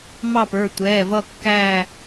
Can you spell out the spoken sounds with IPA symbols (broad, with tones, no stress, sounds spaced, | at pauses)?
m ɑ˦˨ p ə˞˩˧˩ tʷ ɛː˩˧˩ v ʌ˦˨ kː æ˦˨